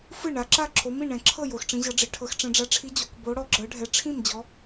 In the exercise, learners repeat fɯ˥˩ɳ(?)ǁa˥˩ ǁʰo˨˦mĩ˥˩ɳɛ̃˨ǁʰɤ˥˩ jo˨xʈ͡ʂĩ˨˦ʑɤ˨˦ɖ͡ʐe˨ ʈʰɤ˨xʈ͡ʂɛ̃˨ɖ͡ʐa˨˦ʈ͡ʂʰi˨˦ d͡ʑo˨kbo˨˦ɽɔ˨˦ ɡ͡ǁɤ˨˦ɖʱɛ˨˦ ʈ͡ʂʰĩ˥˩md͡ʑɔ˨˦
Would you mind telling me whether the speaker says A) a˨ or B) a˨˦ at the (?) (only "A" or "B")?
B